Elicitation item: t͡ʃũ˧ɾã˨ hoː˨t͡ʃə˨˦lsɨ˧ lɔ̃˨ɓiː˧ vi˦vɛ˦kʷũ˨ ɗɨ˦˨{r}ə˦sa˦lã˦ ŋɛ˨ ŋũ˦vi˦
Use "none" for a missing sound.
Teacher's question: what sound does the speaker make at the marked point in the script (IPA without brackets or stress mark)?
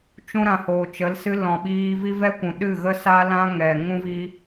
ɣ